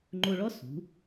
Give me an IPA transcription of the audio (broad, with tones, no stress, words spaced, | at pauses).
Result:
ŋ͡ǃo˧ɭɔ˥ sṳ˩˧